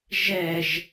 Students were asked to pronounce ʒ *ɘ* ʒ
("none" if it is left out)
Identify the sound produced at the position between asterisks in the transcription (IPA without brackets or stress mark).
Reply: ɛ